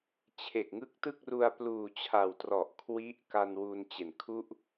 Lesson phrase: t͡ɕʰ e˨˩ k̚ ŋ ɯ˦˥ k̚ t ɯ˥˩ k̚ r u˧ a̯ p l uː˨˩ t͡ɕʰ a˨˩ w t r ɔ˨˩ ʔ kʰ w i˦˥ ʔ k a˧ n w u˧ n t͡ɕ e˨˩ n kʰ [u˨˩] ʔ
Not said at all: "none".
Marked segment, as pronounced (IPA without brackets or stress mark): u˥˩